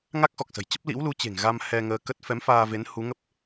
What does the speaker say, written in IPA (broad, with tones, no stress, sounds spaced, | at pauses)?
ŋ a˦˥ k̚ x ɔ˨˩ k̚ s ə̤˨˩ j t͡ɕ ə˦˥ p̚ l ḭ˧˥ w l u˨˦ t͡ɕ e̤˨˩ ŋ ɣ a˧ m h ɛ˧ ŋ əː˧ k ə˦˥ t̚ f ɛ˨˦ m f aː˧ v e˨˦ n h u˨˦ ŋ ə˦˥ p̚